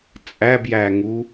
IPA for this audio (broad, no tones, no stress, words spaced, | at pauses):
t͡sʼæbjæŋu